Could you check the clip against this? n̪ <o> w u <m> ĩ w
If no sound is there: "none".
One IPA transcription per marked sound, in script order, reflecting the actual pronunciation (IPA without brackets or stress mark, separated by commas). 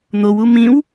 o, m